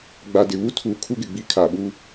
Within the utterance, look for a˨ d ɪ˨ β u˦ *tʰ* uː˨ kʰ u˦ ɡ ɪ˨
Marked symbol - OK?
yes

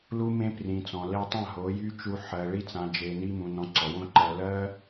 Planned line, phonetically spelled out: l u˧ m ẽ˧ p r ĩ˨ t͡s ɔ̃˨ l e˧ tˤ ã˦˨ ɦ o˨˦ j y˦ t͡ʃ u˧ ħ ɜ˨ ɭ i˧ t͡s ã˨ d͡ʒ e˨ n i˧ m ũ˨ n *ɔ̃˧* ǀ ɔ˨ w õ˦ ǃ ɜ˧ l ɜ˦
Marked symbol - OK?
yes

